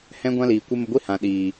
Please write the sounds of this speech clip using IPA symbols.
h ɛ̃˦ ɡʷ ã˦ l iː˨ kʷ e˦ m ə˧ ɡʷ i˦ h ã˨ ɗ iː˨

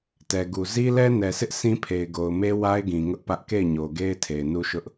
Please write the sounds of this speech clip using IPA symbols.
t ɛ˨ ɡ u˨ z i˦ l ɛ˦ n ɛ˨ s ɪ˦ ʔ sʰ ĩ˦ pʰ e˨ ɪ̯ ɡ o˨ ʊ̯ m e˦ w a˦ ɪ̯ ɡ ĩ˨ ŋ ʊ˦ ʔ p ä˦ ʔ k e˦˨ ɪ̯ ɲ o˨ ɡ e˦ ɪ̯ tʰ e˨ ɪ̯ n u˦ ʃ ʊ˦ ʔ

